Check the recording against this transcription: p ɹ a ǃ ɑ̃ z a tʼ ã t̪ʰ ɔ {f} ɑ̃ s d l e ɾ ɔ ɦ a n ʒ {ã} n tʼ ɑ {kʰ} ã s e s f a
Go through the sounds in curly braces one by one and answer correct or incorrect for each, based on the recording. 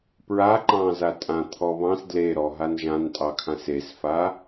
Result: incorrect: β, correct, correct

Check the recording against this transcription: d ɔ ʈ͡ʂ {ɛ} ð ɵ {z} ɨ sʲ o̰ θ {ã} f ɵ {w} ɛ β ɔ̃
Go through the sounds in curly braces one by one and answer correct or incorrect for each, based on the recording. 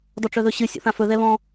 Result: incorrect: œ, incorrect: ɕ, correct, incorrect: ð

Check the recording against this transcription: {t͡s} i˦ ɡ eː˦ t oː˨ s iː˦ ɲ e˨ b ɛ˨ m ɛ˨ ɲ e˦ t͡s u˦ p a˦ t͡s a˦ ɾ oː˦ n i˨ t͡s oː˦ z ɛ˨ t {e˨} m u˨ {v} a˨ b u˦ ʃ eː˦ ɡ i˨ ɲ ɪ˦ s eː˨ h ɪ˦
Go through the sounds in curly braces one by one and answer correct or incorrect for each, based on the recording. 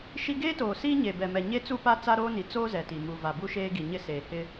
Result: incorrect: ʃ, incorrect: i˨, correct

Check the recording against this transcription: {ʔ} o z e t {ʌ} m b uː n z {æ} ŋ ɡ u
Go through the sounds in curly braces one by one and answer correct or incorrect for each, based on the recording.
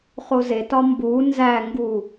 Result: incorrect: χ, incorrect: ɒ, correct

